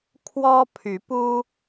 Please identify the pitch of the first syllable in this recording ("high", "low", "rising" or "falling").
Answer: high